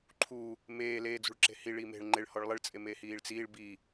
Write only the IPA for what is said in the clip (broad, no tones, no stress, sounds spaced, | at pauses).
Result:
ǃʰ uː | m eː l eː d͡z ṳ ɭ ǁ e̤ h i ɭ iː m e̤ ɭ ŋ͡ǃ e ɭ h ɔ ɭ lˠ ɪ ɭ t͡sʼ e m e h iː ɭ t͡s iː ɭ b iː